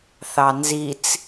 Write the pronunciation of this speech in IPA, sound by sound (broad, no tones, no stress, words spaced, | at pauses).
θɑnzit͡s